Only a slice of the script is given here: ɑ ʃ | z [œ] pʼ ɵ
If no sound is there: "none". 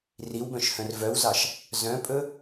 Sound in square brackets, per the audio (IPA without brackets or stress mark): œ̃